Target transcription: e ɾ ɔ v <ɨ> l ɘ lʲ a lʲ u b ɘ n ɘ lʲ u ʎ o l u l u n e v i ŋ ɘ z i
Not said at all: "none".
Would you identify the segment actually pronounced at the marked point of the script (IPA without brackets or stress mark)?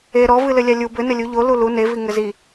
ɨ